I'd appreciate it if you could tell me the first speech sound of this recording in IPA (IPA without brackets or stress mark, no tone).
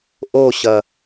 ʔ